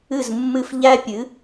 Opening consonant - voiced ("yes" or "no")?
yes